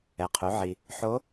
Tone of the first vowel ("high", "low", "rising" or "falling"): low